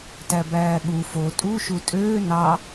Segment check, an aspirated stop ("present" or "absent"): absent